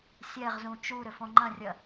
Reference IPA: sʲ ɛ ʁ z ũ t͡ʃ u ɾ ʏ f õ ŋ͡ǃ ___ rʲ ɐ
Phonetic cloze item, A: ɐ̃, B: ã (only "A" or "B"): A